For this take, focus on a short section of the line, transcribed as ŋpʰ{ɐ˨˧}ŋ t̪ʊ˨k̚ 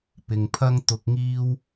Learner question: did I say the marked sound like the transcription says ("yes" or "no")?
no